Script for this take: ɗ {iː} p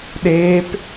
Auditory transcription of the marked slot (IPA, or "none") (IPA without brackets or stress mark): eː